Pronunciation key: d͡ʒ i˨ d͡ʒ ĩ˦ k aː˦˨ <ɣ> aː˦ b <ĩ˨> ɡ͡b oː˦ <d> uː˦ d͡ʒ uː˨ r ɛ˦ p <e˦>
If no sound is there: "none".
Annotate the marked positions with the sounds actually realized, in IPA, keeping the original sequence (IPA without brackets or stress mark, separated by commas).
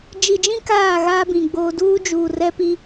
ɣ, ĩ˨, d, i˦